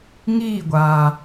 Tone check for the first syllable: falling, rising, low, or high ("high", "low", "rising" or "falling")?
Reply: falling